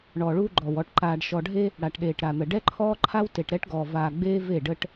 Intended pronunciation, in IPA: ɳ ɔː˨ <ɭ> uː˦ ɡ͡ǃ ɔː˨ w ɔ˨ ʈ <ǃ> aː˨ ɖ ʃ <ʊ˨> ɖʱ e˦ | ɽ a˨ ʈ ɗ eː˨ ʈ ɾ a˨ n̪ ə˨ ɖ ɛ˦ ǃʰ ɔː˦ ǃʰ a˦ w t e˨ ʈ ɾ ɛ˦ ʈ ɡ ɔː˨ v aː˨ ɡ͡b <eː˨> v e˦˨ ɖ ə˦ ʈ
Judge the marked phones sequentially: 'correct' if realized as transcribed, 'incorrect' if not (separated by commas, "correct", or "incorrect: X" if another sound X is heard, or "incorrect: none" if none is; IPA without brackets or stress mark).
correct, correct, incorrect: ɔ˨, incorrect: eː˦